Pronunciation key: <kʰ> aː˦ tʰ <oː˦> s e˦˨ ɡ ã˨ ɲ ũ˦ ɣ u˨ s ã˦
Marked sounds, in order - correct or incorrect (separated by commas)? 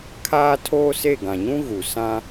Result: correct, correct